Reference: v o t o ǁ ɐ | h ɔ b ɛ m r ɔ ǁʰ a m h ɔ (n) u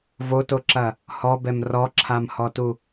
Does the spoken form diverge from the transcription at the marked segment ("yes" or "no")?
yes